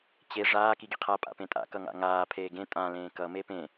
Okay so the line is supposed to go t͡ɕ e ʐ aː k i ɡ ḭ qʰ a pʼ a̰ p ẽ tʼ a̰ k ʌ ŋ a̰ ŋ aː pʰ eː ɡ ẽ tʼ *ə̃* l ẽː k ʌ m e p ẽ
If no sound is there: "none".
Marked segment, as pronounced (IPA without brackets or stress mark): ã